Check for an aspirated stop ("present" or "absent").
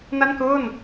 absent